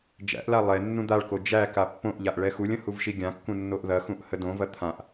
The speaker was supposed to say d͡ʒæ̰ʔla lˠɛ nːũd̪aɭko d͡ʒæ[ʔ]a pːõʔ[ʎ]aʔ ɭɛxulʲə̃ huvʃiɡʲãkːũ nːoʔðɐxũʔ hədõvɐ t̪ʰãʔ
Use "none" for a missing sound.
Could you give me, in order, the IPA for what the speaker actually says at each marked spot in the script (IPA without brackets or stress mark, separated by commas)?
k, ʎ